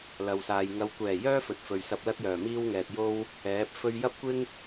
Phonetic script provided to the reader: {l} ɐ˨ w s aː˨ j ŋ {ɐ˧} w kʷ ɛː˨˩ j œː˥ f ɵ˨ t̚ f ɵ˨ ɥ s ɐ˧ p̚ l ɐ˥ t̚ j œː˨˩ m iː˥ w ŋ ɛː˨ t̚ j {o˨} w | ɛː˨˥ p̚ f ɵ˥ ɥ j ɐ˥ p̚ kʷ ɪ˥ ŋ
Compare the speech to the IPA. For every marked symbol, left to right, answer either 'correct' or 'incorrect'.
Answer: correct, incorrect: ɐ˨˧, incorrect: o˥

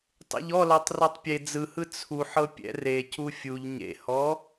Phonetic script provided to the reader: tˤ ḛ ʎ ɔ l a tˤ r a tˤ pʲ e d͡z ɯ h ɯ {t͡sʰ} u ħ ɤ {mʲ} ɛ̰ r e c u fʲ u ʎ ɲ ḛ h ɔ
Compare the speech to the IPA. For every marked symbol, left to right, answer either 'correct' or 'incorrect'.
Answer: correct, incorrect: pʲ

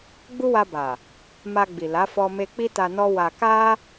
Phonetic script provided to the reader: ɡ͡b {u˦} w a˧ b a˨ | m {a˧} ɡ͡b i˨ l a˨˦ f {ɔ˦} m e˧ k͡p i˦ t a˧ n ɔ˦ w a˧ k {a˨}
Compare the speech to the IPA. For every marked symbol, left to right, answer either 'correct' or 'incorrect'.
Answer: correct, correct, incorrect: ɔ˧, incorrect: a˦

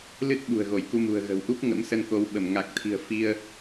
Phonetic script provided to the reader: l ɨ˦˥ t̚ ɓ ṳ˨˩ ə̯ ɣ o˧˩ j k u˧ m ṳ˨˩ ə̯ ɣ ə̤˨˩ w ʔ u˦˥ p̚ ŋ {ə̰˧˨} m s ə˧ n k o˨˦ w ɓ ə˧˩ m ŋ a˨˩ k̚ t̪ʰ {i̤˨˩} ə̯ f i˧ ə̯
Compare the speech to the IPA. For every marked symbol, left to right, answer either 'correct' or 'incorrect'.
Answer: incorrect: ə̰˧˥, correct

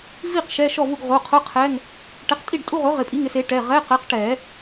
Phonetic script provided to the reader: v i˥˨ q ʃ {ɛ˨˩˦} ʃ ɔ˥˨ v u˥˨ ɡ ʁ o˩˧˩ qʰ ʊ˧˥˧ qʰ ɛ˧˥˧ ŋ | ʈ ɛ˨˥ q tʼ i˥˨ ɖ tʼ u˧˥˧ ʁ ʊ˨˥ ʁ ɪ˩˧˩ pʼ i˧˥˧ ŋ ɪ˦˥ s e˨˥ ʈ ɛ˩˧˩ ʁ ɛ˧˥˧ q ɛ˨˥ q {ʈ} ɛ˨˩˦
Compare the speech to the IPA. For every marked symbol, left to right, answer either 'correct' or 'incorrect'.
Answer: incorrect: ɛ˧˥˧, correct

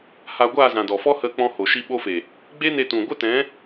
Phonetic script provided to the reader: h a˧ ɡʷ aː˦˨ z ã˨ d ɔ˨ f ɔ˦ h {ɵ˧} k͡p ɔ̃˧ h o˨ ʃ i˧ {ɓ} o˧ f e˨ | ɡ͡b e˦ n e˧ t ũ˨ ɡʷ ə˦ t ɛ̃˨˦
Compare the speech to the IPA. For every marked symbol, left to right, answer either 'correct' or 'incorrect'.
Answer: incorrect: ə˧, correct

